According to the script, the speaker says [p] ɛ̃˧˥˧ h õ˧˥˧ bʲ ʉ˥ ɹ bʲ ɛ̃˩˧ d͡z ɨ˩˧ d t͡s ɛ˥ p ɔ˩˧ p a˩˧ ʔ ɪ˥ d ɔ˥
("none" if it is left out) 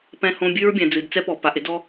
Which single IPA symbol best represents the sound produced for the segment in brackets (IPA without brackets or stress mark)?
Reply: p